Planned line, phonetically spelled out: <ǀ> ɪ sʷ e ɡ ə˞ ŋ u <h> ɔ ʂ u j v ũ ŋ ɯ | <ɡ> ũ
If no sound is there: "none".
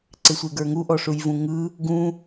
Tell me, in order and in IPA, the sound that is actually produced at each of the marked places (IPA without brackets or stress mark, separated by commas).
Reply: ǀ, ʔ, ɡ